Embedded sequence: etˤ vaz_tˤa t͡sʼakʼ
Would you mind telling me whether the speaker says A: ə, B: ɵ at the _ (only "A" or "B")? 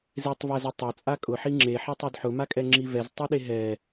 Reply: B